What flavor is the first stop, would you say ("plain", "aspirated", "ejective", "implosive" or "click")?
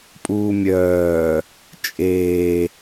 ejective